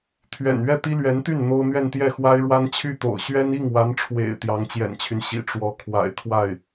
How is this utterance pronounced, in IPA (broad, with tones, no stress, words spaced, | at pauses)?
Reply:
t̪ʰɥɛ̰˨˩n ɥɛ˥˩t̪i˥lɥɛ˧˥nt̪y˥˩n n̪o˥ʊ̯ n̪ɥɛ˥˧nt̪jɛ˥˩xwa˥ɪ̯ ɻwa˥nt͡ɕʰy˥˩t̪o̰˨˩ʊ̯ ɕɥɛ˥ni˥˩ŋwa˧˥nʈ͡ʂʰwḛ˨˩ɪ̯ t̪jɑ˧˥ŋt͡ɕjɛ̰˨˩nt͡ɕʰy˦n ɕḭ˨˩ʈ͡ʂwɔ˧˥ kʰwa̰˨˩ɪ̯ t̪ʰwa˥˩ɪ̯